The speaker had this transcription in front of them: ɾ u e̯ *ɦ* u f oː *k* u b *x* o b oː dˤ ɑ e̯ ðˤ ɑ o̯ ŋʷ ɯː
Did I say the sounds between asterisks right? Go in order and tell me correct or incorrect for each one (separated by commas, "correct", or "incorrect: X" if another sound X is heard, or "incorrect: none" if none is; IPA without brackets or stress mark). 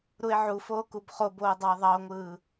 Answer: incorrect: ʕ, correct, incorrect: χ